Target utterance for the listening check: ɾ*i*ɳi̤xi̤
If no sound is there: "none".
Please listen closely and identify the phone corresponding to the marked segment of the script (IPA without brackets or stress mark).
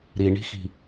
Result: i